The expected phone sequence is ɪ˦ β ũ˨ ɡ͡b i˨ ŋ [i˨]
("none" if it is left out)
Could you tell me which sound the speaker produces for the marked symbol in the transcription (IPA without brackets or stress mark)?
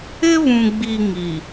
i˨